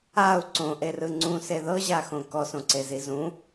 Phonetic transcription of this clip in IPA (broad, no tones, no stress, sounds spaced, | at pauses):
a u̯ ǀ õ ʔ e r ɯ ŋ͡ǀ ũ s e ð ɤ ʑ a x õ k ɔ s õ ǀ e z i z ũ